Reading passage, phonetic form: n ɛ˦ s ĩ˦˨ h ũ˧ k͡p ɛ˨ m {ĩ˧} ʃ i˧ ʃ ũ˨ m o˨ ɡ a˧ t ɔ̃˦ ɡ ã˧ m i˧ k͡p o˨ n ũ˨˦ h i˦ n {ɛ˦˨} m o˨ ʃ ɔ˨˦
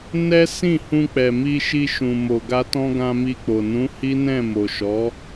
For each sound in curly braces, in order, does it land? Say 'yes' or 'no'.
no, no

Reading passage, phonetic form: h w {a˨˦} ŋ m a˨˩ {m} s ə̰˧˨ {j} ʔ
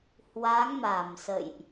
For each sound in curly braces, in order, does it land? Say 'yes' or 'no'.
yes, yes, yes

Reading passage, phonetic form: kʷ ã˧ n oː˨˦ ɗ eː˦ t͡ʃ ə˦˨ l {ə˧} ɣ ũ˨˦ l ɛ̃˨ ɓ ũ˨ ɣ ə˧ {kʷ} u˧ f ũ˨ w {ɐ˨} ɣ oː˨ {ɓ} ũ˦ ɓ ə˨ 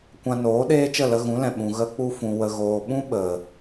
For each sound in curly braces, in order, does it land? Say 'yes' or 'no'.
yes, no, no, yes

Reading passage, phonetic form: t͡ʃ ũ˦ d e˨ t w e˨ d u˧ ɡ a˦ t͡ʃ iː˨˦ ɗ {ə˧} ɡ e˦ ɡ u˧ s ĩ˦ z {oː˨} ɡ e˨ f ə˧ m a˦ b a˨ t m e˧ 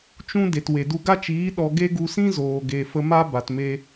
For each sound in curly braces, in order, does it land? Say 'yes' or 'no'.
no, yes

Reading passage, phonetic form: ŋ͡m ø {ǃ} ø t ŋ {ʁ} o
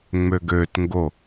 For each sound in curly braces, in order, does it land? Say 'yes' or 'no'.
no, no

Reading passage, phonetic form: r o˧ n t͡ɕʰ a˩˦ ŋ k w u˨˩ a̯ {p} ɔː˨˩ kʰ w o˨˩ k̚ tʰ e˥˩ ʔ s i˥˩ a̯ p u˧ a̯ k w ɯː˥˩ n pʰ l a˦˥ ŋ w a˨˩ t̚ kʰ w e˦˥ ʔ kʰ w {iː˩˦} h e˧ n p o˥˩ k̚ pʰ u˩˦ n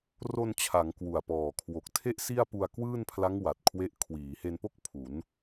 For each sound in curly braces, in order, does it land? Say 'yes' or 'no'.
yes, yes

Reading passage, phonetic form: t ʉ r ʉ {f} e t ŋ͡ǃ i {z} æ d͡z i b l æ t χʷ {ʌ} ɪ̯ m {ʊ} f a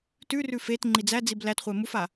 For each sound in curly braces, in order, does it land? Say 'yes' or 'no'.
yes, no, yes, no

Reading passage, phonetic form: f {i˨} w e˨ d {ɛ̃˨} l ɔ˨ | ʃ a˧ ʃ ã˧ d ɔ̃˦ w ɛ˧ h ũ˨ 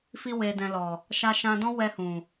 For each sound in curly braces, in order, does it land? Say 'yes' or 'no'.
no, yes

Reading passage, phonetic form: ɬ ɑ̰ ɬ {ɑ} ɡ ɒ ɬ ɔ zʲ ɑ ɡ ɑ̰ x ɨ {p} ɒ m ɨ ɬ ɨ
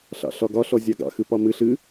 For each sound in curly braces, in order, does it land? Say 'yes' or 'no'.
no, yes

